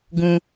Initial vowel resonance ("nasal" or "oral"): nasal